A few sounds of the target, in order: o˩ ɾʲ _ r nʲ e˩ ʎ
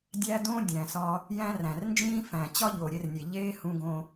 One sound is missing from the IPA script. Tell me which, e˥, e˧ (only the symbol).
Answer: e˧